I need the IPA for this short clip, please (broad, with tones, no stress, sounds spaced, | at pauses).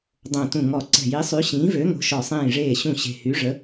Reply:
dˤ õ˧˩ t ũ˧˩ ŋ ɔ˧˩ ǀ ɛ̤˧˩ j i˨˥ sˤ y˨˥ ɕ ĩː˨˥ v ø˨˥ ŋ o̤˨˥ ʃ ɔ˧˩ sˤ ĩː˧˩ ʐ eː˧˩ ɕ ũ˧˩ ɕ e̤˧˩ h y˨˥ ʐ ə˨˥